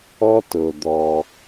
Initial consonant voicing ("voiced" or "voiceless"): voiceless